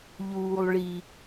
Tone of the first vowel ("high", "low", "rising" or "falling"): low